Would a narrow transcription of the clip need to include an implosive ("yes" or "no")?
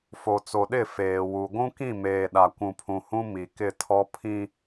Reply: yes